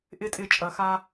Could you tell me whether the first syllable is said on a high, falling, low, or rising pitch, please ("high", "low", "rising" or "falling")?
high